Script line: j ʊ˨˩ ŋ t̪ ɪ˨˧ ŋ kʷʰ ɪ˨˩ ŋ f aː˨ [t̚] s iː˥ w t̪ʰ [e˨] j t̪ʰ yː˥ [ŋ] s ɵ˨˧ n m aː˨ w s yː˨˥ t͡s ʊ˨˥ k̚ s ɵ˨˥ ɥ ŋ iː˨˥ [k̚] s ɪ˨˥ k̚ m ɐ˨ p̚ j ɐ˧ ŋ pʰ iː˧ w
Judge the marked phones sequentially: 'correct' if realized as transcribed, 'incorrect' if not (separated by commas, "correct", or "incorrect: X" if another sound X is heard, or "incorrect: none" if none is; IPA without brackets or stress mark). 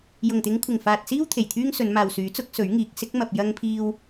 correct, incorrect: e˨˩, correct, correct